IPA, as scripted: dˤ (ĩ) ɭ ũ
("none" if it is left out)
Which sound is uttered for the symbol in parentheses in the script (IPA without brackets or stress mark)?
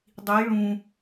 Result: i